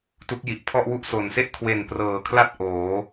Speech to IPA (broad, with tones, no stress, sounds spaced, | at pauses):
t u˦˥ k̚ j i˨˩ ʔ pʰ ɔ˥˩ ʔ w u˥˩ ʔ s o˨˩ n s e˥˩ ʔ kʰ w e˨˩ n p r ɤː˨˩ kʰ l a˥˩ t̚ ʔ oː˩˦